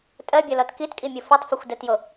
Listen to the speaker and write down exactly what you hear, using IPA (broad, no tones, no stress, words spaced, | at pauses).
tʼɜbʲɔlɔt kitkʼimʲo fɔtˤfoxʷdɜtjo